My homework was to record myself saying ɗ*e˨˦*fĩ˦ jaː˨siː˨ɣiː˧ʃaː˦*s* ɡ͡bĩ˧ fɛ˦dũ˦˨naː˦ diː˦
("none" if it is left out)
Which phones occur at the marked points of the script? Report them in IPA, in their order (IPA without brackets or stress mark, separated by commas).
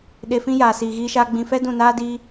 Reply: e˧, none